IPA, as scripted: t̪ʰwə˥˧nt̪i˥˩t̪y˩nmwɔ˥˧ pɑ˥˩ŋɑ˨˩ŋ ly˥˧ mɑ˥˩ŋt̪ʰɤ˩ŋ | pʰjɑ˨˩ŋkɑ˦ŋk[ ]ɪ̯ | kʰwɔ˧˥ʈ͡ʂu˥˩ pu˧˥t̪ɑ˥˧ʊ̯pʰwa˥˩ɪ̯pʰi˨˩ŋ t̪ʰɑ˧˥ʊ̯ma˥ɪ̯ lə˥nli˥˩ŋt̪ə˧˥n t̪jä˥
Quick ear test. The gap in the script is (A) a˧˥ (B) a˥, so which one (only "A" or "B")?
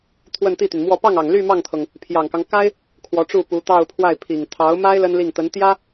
B